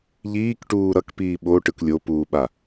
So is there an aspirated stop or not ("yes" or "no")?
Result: no